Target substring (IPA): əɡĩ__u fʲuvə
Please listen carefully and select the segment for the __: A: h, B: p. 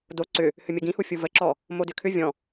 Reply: A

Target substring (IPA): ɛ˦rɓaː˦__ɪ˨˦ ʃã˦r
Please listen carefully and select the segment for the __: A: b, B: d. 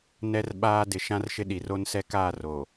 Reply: B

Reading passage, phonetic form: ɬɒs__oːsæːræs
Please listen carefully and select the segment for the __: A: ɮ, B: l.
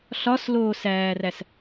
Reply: B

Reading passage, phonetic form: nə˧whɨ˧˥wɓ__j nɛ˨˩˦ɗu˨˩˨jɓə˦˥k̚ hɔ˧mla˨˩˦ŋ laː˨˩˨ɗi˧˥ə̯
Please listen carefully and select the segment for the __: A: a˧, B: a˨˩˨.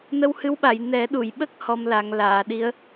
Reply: B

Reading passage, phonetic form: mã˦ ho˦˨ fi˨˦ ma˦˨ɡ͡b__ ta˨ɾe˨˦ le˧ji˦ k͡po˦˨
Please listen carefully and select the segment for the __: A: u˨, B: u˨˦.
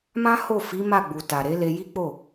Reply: A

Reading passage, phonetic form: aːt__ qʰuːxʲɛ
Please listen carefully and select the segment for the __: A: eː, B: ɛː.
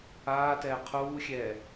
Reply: B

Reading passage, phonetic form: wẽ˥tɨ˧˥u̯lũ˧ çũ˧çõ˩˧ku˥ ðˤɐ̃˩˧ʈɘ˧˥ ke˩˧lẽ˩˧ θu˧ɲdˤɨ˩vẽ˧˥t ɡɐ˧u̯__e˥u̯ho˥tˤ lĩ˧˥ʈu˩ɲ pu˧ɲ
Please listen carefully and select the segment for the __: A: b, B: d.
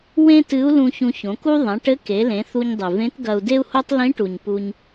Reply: B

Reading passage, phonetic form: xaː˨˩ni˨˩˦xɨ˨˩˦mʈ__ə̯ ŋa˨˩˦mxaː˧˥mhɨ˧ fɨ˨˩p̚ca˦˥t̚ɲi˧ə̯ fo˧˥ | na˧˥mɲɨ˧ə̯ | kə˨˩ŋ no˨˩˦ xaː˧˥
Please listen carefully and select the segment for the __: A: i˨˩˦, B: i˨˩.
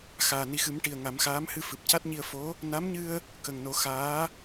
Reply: B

